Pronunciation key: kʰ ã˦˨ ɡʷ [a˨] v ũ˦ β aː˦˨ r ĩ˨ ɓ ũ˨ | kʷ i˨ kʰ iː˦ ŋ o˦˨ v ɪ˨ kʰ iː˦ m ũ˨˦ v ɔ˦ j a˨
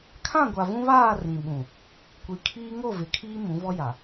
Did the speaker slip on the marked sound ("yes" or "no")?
no